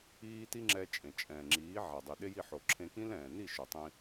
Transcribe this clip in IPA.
iː˦ t i˦ ŋ͡ǁ ɛ˧ t͡ʃʼ ẽ˨ t͡ʃʼ ɛ̃ː˨ ŋ͡ǁ iː˨˦ ʕ a˨ dˤ i˨ ɗ e˦ j i˦˨ ħ o˨ ǁʰ ẽ˧ k ĩ˦ l ɛ̃ː˨ n i˦˨ ʃ ʊ˨ tˤ ĩ˧

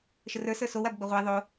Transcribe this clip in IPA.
ʃ ə r ə˞ s ə˞ s o w a b ɡ͡b ə ʁʷ e ðˤ o

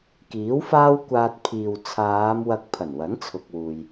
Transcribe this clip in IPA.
k iː˨˥ w f aː˥ w kʷ aː˧ t̚ pʰ iː˨ w t͡sʰ aː˨˧ m w ɐ˧ k̚ pʰ ɐ˨˩ n w ɐ˨˥ n t͡sʰ ʊ˨ k̚ w uː˨ j

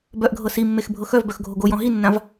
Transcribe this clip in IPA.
b œ ʔ ɡʱ ɤ s i mː e x bʱ ɤ x œ v b œ x ɡʱ o ɡ o j ɔ̃ ɦ i nː ã v

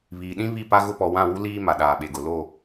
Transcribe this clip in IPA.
β iː˨ ɗ ĩ˦ β i˦˨ p a˦ ɣ ʊ˦ p ɔ˨ w ã˦˨ w u˦ l iː˦ m a˨ ɗ aː˨ ɓ e˨ ɡ ʊ˨ l o˦˨

